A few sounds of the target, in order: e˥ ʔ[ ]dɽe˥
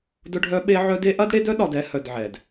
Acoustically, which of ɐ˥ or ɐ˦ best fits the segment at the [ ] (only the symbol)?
ɐ˥